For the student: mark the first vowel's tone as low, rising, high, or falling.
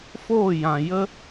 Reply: falling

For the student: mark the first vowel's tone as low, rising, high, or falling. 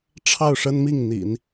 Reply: falling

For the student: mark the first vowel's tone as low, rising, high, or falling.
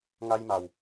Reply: high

